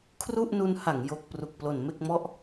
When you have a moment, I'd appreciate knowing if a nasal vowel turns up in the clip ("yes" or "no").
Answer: no